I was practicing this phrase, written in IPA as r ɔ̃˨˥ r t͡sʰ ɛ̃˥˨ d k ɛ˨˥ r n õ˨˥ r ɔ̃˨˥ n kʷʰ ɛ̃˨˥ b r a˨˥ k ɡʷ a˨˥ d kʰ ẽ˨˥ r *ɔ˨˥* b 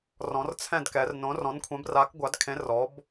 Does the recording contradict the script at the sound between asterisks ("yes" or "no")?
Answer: no